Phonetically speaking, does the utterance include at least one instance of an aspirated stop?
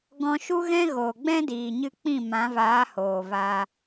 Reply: no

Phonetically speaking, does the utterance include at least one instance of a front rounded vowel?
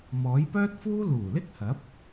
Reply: yes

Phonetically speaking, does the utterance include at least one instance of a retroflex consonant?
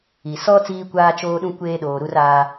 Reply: no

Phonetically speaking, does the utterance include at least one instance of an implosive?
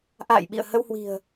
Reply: yes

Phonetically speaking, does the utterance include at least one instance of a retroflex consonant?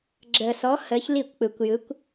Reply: no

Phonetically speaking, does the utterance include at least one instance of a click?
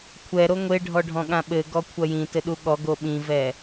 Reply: no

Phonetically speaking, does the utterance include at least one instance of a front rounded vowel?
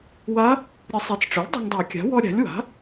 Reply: no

